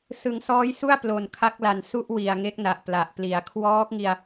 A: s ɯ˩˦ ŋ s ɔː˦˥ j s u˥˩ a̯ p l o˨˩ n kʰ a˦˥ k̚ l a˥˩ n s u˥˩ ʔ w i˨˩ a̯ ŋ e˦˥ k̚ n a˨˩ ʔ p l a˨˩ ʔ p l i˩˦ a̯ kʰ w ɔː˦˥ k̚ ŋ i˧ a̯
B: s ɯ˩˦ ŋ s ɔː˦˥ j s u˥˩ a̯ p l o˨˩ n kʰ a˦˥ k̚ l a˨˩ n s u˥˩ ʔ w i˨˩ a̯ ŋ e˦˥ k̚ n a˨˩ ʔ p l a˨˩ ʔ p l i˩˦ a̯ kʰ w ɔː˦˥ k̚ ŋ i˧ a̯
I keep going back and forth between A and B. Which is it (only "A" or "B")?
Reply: B